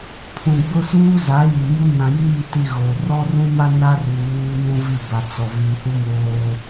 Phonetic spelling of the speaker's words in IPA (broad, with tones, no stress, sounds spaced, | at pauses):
pʰ ũ˨ ɡ͡b ʊ˦ s uː˦ z a˨˦ j i˨ m u˦ n ã˨ j iː˦˨ t i˨ ɣ o˨ r ɔ˦ r ũ˦ m a˦ n a˦ r u˨ β uː˦ n ũ˦ v i˦˨ b a˨ t͡s ɔ˨ v i˨ h u˦ m oː˦